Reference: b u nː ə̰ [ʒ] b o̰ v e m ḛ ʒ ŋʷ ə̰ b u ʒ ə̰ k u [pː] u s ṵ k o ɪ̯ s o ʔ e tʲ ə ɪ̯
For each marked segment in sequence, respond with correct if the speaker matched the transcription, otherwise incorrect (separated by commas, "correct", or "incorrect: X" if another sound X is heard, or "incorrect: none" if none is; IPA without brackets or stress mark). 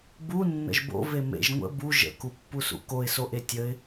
correct, correct